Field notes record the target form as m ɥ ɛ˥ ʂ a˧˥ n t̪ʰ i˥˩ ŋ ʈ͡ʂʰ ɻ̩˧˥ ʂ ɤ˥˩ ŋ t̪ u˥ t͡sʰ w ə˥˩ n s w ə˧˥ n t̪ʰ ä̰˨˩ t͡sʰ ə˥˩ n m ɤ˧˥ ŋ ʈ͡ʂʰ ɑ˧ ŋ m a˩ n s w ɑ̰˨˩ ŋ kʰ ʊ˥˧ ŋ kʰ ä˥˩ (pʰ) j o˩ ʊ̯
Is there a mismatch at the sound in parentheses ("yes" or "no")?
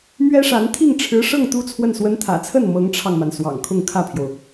no